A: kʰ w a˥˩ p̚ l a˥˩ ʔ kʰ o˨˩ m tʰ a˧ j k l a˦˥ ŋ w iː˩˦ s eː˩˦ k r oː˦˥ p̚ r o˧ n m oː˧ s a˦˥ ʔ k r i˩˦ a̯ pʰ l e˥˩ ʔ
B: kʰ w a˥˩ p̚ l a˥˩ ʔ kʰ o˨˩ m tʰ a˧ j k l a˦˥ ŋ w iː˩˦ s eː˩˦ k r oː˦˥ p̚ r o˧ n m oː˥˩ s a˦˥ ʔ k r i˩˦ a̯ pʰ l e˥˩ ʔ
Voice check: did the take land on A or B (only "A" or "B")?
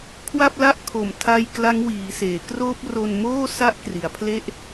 B